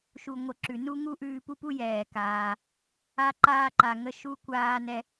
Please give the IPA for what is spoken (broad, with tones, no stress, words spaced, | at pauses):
ʃu˩ŋʷə˩ ǁʉ˩nu˥ŋu˥ ʔʉː˧pu˥pu˥jɛː˩ kaː˩ | a˧ǃaː˧ǃa˩ ŋə˧ʃu˧kʷaː˧ nɛ˧